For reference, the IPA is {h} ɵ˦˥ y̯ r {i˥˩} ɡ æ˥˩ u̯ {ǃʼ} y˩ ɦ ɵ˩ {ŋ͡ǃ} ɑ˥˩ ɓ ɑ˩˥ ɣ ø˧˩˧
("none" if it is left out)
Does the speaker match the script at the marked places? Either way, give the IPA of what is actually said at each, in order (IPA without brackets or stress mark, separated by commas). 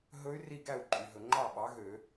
ɦ, i˥˩, ǃʼ, ŋ͡ǃ